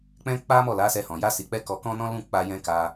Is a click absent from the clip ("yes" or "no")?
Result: yes